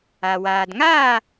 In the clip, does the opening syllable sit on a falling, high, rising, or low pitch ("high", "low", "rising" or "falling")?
low